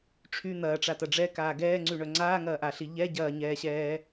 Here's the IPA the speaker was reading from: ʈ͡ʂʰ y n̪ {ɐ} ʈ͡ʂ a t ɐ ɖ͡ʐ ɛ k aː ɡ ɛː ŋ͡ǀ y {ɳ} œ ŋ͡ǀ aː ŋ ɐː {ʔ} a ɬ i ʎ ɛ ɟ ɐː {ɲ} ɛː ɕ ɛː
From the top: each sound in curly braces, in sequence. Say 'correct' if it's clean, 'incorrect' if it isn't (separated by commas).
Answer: incorrect, correct, correct, correct